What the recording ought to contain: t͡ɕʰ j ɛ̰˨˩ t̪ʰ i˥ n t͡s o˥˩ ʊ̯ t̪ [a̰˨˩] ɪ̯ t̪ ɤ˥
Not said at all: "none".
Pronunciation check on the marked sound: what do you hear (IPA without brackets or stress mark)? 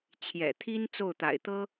a̰˨˩